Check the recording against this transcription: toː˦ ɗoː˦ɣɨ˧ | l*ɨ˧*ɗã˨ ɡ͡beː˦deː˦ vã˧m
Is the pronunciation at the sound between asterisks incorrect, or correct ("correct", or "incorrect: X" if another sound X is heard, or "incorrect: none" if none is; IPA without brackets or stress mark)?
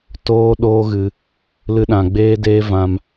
correct